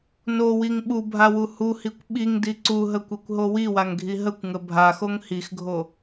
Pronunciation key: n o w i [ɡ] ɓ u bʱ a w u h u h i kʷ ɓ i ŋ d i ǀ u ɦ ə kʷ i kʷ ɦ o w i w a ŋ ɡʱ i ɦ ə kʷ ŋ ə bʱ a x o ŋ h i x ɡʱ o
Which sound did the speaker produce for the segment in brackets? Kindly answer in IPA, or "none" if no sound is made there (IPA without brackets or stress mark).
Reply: ŋ